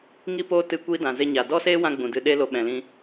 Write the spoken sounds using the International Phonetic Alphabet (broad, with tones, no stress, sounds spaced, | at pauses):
ŋ i˦ p oː˦ t ɨ˧ kʷ i˦ d ã˨ z e˧ ɲ a˨ d ɔ˦ s eː˦ w ã˧ ɡ͡b ũ˨ d ɨ˧ ɗ e˦ l o˧ ɓ ɛ̃˨ l ĩ˧